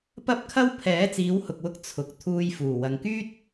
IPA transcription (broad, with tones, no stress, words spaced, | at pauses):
pɐ˥p̚kʰɐ˥w pʰɛː˨˥t͡siː˨˧whʊ˨k̚wʊ˧k̚ t͡sʰʊ˨k̚ t̪ʰuː˧jfuː˨˩wɐ˨ŋkyː˥t̚